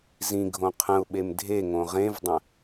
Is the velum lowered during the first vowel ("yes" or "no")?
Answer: yes